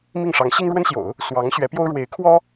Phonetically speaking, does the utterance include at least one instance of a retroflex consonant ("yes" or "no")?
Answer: yes